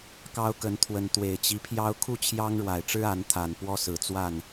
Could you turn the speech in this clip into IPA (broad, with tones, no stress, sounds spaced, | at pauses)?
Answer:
k ɑ˦ ʊ̯ k ə˨˦ n t̪ʰ w ə˨˦ n t̪ w e˨˩ ɪ̯ t͡ɕ i˦ pʰ j ɑ˦ ʊ̯ kʰ u˥˨ t͡ɕʰ j ɑ˦ ŋ ɻ w a˨˩ ɪ̯ ʈ͡ʂ ɻ̩˦ a˨˦ n t̪ʰ a˨˩ n p w ɔ˦ s ɹ̩˨˩ t͡s w a˥˨ n